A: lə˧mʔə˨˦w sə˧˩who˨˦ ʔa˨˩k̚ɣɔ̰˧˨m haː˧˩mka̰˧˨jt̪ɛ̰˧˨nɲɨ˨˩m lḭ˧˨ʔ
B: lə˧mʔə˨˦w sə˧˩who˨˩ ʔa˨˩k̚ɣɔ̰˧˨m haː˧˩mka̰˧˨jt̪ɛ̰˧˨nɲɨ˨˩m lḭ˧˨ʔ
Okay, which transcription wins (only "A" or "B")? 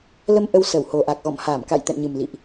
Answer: B